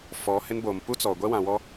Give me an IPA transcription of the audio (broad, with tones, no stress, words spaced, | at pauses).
fɔ˨˦hɪ˦nboː˨m pu˦t͡sɔ˨ ɡʷɛ˦wã˨wɔ˦